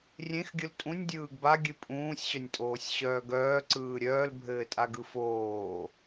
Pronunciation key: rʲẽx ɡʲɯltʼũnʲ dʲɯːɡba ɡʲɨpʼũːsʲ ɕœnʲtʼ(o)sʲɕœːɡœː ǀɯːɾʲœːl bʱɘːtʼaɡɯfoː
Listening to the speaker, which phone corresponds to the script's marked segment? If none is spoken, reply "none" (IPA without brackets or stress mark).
oː